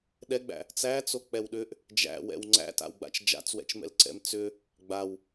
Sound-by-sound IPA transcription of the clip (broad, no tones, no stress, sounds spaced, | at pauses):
ɗ ɛ ɡ͡b æ̰ | t͡s æ t͡s o k͡p ɛ w ɗ ʏ ʔ | d͡ʒ æ̰ w ɛ̰ w ŋ͡ǀ æ̰ t a̰ w ɡ͡b a̰ t͡ʃ d͡ʒ a̰ t͡s w ɛ̰ t͡ʃ m ɛ̰ l ǀ ɛ̰ m t͡s ʏ | ɡ͡b a w